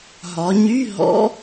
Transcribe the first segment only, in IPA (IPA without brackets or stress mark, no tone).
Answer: ɦ